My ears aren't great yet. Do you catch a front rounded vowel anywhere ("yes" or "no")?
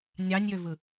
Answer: yes